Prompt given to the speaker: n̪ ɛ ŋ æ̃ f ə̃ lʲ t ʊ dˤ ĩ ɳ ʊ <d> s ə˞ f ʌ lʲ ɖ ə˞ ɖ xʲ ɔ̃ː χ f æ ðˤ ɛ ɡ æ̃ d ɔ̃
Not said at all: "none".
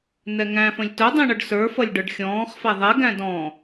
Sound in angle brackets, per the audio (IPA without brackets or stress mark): ɖ